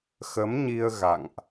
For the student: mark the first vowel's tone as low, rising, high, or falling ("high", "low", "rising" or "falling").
rising